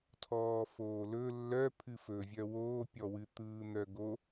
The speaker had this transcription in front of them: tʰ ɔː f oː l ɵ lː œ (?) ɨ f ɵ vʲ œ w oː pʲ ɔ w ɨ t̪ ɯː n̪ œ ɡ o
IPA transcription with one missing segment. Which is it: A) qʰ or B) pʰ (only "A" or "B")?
B